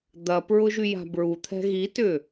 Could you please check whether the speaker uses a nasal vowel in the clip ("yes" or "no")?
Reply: no